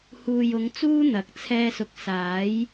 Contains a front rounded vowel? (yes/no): no